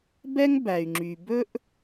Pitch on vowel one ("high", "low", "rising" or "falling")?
high